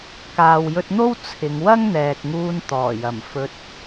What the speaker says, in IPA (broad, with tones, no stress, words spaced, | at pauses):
kaː˨wjɵ˧t̚n̪o˥w t͡sʰɪ˨˧ŋwɐ˥ŋ n̪ɛː˨k̚ŋuː˧n t̪ɔː˨˩jɐ˨˩m fɵ˧t̚